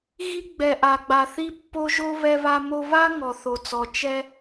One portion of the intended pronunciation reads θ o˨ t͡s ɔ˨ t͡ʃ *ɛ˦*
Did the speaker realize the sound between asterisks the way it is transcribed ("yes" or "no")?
yes